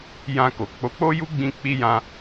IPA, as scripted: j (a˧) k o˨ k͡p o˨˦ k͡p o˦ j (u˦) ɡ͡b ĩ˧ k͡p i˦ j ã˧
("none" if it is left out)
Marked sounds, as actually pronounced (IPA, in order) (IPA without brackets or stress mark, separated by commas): ã˧, u˦